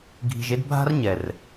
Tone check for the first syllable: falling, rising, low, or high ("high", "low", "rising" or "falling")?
low